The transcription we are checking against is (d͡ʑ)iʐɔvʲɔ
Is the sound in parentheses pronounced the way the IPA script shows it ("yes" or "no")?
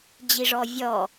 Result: yes